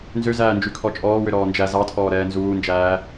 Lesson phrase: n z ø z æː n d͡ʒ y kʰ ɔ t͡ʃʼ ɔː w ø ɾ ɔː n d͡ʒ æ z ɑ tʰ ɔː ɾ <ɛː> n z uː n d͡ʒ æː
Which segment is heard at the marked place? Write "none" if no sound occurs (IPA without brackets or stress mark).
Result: ɛː